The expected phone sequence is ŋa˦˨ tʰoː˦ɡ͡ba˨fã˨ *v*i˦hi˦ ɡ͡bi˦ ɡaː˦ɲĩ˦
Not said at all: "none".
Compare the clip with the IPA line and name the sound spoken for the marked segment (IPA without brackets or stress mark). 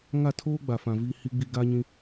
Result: v